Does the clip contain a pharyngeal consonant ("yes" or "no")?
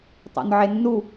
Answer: yes